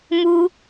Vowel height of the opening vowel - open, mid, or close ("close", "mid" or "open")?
close